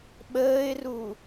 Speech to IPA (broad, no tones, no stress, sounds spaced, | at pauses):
ɓ əː ɪ̯ r u